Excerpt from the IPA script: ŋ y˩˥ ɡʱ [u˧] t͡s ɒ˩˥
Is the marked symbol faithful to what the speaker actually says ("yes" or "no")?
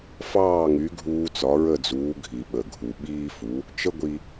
no